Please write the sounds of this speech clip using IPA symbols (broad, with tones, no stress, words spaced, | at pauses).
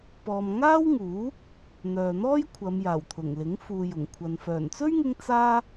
pɔː˨m ŋaː˥wŋuː˨˥ | n̪œː˨n̪ɔː˥jkʷʰɐ˨˧m jaː˨˩wt̪ʰʊ˨˩ŋlɪ˨˥ŋ fuː˨jʊ˨˩ŋkʷʰɐ˨n fœː˨˩nt͡sɵ˥ɥŋɪ˧ŋ t͡saː˥